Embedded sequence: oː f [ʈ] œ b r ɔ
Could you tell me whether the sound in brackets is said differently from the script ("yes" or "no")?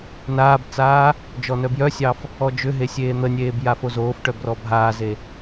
no